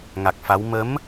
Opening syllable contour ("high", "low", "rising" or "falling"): low